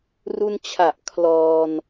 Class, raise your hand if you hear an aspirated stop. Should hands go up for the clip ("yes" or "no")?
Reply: yes